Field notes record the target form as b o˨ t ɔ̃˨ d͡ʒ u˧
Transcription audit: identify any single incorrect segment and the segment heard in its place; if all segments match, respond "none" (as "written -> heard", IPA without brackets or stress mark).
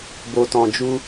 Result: none